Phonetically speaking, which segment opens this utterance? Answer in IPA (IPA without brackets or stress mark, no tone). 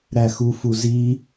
ɾ